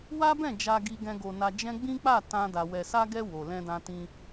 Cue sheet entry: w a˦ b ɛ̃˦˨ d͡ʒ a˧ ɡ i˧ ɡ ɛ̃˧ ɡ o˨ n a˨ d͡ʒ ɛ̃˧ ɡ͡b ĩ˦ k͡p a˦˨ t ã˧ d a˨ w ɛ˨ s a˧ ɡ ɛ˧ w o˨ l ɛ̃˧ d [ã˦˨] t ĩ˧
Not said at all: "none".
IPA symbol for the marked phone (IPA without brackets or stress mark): ã˧